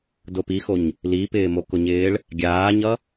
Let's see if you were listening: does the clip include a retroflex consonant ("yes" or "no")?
yes